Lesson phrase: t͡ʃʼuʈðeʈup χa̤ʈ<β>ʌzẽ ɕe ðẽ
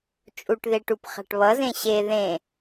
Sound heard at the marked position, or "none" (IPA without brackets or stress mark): β